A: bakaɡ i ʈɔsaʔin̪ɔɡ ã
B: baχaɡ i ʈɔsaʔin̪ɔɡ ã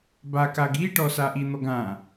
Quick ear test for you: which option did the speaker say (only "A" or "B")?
A